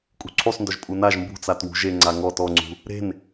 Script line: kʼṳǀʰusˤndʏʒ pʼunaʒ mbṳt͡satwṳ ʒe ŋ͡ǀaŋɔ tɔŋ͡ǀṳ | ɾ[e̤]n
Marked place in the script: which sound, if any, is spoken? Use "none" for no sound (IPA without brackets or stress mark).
e̤